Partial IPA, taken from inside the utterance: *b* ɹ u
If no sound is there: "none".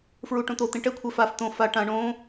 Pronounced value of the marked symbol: f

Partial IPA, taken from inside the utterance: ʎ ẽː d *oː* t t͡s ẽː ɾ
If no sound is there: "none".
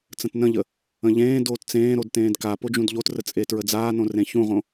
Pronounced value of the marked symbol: oː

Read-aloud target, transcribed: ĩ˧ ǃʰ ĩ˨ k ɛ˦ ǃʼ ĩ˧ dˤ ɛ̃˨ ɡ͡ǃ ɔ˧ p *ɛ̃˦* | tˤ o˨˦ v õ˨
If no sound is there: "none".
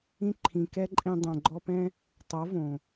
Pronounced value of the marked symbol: ɛ̃˦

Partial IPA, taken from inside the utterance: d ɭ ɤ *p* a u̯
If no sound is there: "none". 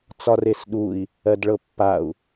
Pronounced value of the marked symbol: pː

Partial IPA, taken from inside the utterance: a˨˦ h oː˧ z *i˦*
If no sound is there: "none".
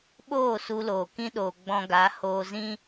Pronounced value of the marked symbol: ĩ˦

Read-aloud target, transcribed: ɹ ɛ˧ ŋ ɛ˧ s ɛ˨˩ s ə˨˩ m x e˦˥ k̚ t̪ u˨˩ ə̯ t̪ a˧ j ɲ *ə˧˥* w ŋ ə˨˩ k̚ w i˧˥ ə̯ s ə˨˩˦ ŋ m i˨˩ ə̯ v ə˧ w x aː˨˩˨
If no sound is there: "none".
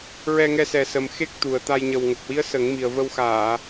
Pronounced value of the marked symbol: ə˨˩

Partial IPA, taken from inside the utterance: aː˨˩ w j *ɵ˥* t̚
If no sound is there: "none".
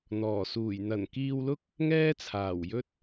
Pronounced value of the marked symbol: ɵ˥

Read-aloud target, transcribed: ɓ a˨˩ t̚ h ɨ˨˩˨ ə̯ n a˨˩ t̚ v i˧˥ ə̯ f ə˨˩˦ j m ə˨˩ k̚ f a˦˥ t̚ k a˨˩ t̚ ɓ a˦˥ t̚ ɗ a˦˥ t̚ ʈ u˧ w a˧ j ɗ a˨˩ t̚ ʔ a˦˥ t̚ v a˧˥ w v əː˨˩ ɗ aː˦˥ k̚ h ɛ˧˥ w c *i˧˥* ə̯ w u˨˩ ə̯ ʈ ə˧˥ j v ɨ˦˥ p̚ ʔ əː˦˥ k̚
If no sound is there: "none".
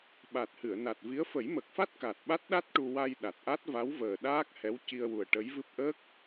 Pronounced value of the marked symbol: i˧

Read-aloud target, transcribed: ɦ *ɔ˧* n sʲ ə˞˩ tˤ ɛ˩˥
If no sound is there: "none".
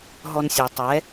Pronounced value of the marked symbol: ɔ˧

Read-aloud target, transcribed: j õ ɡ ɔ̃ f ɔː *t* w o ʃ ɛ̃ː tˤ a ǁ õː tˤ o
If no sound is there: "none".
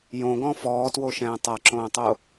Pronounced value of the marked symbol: t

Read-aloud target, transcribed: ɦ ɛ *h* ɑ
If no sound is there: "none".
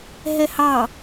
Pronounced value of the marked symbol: h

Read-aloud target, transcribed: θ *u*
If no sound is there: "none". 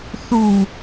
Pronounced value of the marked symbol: u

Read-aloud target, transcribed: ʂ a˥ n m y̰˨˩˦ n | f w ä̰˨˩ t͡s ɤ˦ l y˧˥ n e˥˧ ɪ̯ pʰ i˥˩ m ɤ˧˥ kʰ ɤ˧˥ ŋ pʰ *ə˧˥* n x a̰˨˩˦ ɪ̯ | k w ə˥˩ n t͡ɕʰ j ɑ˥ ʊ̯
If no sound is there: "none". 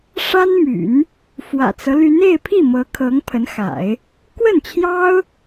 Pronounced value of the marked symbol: ə˧˥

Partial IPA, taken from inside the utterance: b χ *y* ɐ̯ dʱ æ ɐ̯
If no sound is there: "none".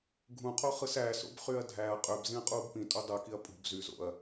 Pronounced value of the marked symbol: y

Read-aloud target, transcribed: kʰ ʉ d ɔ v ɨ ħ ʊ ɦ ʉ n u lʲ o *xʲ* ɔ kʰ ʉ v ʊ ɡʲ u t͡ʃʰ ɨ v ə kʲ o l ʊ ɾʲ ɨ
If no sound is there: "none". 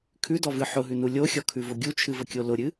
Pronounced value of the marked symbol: xʲ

